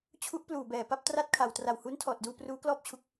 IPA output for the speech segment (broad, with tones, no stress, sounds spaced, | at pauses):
t͡ɕʰ u˦˥ ʔ p l uː˨˩ b ɛː˨˩ p a˥˩ p̚ t r a˥˩ t̚ kʰ a˨˩ w t r a˨˩ w h uː˦˥ n tʰ ɔː˨˩ t̚ d uː˧ p r uː˦˥ k l ɔː˥˩ p̚ t͡ɕʰ u˦˥ k̚